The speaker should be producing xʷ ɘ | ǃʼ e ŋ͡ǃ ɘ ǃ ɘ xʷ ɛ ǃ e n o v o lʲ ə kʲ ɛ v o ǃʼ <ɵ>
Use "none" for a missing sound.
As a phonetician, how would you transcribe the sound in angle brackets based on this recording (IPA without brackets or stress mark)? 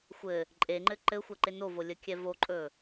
ɵ